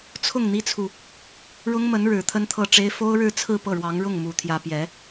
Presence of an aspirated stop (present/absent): present